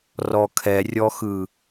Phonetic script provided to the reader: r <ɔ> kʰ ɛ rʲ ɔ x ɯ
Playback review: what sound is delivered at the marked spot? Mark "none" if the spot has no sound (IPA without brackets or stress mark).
ɔ